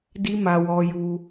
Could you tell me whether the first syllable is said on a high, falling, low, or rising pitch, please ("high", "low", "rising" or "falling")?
high